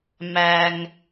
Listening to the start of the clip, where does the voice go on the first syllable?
high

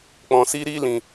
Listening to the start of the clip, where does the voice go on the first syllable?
low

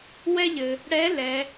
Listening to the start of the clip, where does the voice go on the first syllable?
high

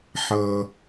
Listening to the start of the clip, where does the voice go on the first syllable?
low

